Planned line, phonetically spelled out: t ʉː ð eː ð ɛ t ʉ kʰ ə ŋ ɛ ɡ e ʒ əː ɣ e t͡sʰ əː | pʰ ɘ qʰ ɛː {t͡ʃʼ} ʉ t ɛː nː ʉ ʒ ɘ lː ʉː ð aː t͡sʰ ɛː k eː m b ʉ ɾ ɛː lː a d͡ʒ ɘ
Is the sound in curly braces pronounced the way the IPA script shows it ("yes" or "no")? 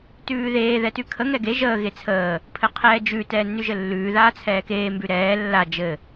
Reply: no